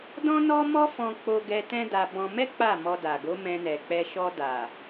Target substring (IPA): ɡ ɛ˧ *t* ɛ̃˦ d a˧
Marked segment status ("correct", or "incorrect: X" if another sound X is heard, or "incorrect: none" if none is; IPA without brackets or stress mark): correct